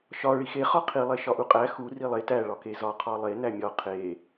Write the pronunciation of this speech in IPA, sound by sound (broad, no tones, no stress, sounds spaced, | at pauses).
ʃ ɒ ɭ i x e χ ɒ qʰ i lˠ e ʃ ɒ ʔ u qʼ æ x u r i lˠ e t æ ɭ ɒ k e z ɒ qʰ ɒ lˠ e n æ mʲ ɒ qʰ e